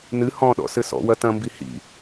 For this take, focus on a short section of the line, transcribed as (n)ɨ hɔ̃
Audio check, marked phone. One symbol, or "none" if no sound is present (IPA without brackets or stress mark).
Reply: n